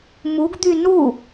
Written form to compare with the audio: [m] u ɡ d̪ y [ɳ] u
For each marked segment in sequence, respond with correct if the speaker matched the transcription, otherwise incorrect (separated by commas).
correct, incorrect